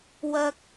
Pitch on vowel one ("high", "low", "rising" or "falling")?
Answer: high